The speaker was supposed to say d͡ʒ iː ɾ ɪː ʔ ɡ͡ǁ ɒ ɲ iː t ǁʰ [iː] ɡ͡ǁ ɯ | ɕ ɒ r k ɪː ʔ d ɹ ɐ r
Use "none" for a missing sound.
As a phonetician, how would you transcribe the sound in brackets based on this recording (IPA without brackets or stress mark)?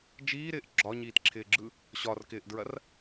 ɪː